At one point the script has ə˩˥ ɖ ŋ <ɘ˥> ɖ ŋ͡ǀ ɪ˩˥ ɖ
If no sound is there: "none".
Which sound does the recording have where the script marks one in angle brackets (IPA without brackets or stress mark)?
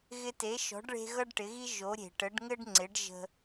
ɘ˥